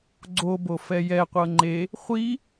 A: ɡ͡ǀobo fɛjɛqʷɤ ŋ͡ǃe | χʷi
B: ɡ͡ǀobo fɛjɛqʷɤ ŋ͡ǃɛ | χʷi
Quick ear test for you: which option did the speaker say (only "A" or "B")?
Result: A